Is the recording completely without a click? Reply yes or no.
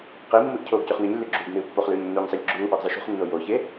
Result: no